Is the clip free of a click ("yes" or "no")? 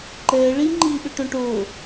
no